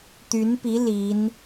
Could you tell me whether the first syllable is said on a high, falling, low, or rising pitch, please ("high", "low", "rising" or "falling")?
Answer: rising